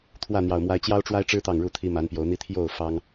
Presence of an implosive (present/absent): absent